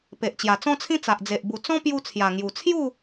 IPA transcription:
pe˨ʔt͡ɕja˨˩t͡sɔ̃˦t͡sʰĩ˦ t͡sa˨ʔd͡ze˨ʔ bu˨˩ t͡sɔ̃˦pju˧ t͡sʰja˨˩ŋju˨˩ t͡sʰju˥˧

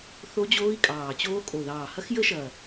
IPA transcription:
θo˦˥d͡ʑoː˦˥i̯kʼɑː˨˩t͡ɕoː˦˥ kʼo˨˩ ðɑː˨˩hɐ˦˥xjə˦˥ʃɐ˨˩

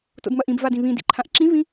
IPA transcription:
to̰dmɐʔĩb vadĩβĩ dḭǃʰãʔǁĩvĩ

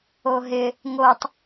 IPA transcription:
oɦɪ | ŋotˤ

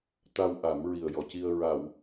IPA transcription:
t̪a˧wʔa˨˩˦m ɹi˨˩ə̯jɔ˨˩˨ci˧ə̯ ɹa˨˩˨w

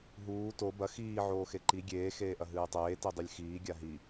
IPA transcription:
ɦuː to bɐ xiː ʕoːxeǃi ɡʲeː xeːʔɐɦɨːtˤeː tidˤɨlʲxiː ɡʲaɦi

